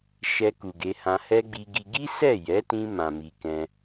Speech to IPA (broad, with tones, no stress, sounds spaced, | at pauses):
ʃ ɛ˧ k u˨ ɡ e˨˦ h ã˧ h ɛ˦ ɡ͡b i˧ ɡ i˧ ɡ i˦ s ɛ˦˨ j ɛ˨˦ t ĩ˧ m ã˨ m i˨ k ɛ̃˧